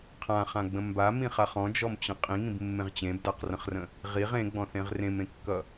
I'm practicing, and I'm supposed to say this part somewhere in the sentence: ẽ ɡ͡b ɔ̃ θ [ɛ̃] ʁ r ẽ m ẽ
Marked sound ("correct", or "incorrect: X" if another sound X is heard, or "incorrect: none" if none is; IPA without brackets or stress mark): incorrect: ẽ